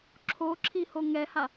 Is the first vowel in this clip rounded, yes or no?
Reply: yes